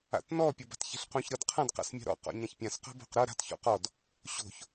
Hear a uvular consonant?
yes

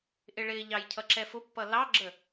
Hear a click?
yes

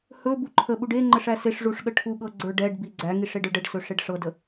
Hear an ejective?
no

